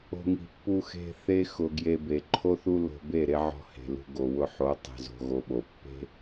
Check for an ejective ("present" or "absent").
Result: absent